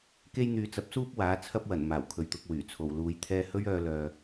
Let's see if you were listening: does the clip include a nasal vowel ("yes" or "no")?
no